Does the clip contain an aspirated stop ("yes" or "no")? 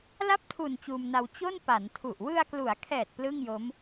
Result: yes